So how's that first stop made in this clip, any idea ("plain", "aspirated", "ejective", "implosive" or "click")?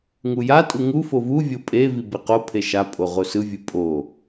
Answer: ejective